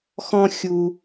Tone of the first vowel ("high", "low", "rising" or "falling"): high